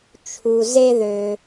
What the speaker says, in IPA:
t͡ʃʰu˨ze˦ðø˨

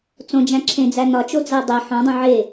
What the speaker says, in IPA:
t͡sõd͡ʒæ̃ ǁʰẽd͡zæ nɒt͡ʃod͡zæ dˤe ħõ dˤũʕe

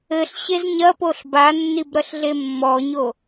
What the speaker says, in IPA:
ɘɬɕez ɲɐpoɬ banːibɾɐɬɮe mːɔɲo

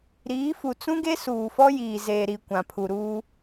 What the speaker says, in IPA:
ɾiː˨˦fu˨ t͡sũ˦ɡe˦ suː˨fɔ˦jiː˨ zeː˨ɾi˨ kʷã˨pʰu˨ɾuː˦

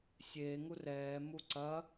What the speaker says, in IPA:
sʲeːŋu rɛː muǀɐ

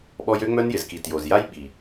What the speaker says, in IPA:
ɓɔ˦j ø˦ŋ͡mœ˦njɪ˨zki˨ tjo˨zja˦j ɓi˨

